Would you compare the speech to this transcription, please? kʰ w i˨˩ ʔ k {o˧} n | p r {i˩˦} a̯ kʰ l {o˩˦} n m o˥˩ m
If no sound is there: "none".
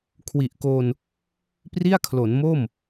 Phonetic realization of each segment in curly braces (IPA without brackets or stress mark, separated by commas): o˧, i˥˩, o˩˦